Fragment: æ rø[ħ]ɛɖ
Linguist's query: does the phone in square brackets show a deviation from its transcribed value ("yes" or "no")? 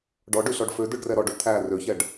yes